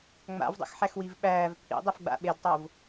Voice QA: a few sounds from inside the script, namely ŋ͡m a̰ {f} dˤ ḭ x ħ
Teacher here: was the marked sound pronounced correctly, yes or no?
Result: no